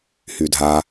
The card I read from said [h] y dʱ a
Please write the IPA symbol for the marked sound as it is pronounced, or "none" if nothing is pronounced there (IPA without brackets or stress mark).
h